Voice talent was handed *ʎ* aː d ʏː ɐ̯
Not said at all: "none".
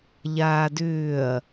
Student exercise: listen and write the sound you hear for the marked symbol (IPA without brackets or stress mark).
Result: ʎ